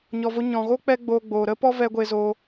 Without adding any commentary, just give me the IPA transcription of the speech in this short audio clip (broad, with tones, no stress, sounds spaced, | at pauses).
ɲ ɔ˨ v o˧ ɲ ɔ̃˨ ɣ o˦ k͡p ɛ˦ ɡ͡b oː˧ ɡ͡b oː˨ ɾ ə˦ p ɔ˦ v ɛ˧ ɡʷ e˧ z o˧